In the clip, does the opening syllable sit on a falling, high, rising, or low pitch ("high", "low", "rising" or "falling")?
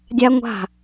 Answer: high